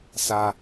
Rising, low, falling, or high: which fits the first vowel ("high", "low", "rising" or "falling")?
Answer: high